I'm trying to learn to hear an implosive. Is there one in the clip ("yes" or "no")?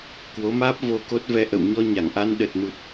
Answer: yes